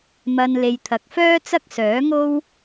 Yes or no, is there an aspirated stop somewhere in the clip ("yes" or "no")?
yes